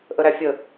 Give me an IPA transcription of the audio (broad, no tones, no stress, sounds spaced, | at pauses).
ʔ ə ɾ æ fʲ ə